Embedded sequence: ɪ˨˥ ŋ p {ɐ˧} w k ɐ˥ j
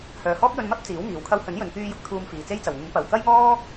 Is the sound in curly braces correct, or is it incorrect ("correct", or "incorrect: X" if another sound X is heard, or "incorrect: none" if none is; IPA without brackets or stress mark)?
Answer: incorrect: ɐ˨˩